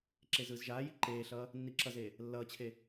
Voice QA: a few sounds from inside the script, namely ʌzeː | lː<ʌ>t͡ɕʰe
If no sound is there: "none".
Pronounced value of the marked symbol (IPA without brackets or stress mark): ʌː